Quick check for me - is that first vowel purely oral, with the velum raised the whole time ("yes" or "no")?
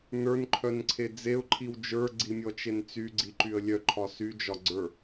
yes